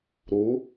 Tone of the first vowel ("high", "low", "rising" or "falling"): rising